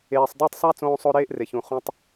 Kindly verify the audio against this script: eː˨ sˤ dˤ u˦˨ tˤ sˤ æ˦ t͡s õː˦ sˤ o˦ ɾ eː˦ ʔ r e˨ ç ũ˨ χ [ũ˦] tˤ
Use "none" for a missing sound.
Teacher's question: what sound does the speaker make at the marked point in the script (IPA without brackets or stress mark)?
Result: ũ˧